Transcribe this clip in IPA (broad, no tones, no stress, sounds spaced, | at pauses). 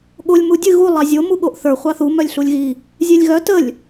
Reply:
ɠ o lʲ m u dʲ ɨ ɣ u lˠ ɑ zʲ o m u ɠ o ʔ θ ə˞ χʷ ɑ θ u m œ lʲ ɬ u lʲ ɣ i | zʲ e lʲ ɣ œ t ə lʲ